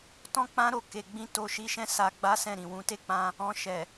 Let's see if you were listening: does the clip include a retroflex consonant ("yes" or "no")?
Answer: no